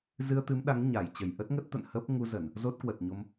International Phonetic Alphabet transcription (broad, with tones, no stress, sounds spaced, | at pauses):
z ɨ˧ ə̯ t̪ ɨ˨˦ m ɗ a˨˦ ŋ ɲ a˧˩ j t͡ɕ ə˧˩ j ʔ ə˦˥ t̚ ŋ ə˦˥ t̚ t̪ ə̰˧˨ n h əː˦˥ p̚ ŋ u˧ z ə˧˩˨ n | z o˦˥ t̚ k w ə˨˩ t̚ ɲ o˧ m